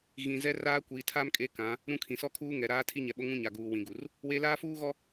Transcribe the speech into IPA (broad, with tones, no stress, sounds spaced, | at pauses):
ɣ ĩ˨ z ɛ˦ r aː˦ kʷ iː˨ tʰ a˦ m kʼ e˦ k ã˨˦ | ɾ ũ˦ kʰ ĩ˨ s ɔ˦ kʰ uː˦ ŋ ɛ˨ ɾ aː˦ tʰ i˦ ɲ ɛ˨ ɓ o˦ ŋ ũ˦ ɲ a˨ ɡ uː˨ w ĩ˨ ɡ u˨ r | w e˦ l aː˦ f uː˦ ɣ ɔ˦